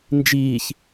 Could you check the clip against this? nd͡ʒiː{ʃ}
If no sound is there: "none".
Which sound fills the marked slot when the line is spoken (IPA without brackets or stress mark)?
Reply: ç